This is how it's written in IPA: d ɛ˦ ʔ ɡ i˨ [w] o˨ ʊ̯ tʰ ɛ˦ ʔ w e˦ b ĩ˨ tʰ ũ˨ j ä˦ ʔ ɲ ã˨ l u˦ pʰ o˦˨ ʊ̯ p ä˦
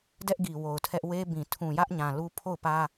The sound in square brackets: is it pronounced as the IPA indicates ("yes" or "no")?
yes